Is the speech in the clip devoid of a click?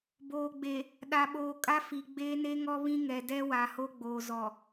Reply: yes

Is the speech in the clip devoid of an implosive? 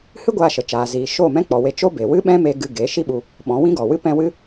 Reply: no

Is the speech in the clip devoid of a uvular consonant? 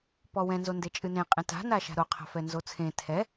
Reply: no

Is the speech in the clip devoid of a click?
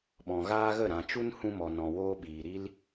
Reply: yes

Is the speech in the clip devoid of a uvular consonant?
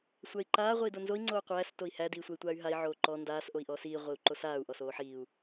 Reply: no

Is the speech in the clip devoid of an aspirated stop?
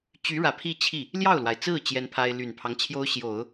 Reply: no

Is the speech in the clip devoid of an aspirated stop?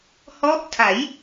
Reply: no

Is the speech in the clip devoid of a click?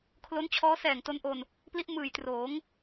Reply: yes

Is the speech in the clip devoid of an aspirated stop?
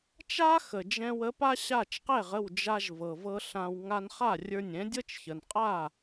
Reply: yes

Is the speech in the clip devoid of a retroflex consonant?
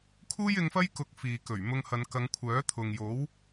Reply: yes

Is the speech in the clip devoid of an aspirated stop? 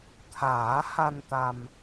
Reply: no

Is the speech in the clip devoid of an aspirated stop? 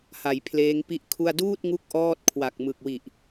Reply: no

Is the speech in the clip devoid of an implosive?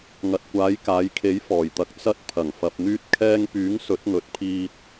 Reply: yes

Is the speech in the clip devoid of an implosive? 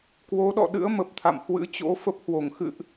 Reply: no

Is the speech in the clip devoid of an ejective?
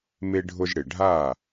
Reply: yes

